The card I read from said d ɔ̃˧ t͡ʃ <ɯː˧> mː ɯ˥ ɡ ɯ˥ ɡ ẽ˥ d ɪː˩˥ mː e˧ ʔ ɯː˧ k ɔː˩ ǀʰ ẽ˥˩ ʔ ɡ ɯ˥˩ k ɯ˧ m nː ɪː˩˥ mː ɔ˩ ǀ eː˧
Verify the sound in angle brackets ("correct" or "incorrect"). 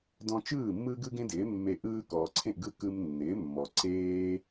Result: incorrect